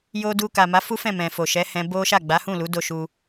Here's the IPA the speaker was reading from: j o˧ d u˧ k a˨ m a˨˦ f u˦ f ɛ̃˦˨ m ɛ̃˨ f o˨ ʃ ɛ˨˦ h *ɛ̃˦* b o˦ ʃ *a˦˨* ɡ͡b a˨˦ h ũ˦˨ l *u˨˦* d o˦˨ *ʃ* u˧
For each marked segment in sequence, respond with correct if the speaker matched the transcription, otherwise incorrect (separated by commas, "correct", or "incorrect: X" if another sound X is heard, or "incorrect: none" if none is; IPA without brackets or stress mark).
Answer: incorrect: ɛ̃˧, correct, correct, correct